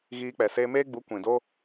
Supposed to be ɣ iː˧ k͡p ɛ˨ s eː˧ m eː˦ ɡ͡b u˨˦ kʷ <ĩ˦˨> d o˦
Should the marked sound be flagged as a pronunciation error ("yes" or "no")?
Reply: yes